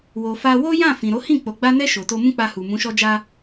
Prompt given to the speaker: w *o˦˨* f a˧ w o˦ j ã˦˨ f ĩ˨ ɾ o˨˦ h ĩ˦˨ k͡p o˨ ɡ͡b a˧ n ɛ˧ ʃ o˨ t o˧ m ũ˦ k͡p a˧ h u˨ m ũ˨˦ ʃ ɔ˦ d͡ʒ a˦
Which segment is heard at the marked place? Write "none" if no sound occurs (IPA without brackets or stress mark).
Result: o˨